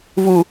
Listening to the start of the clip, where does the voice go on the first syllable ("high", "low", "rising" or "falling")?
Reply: low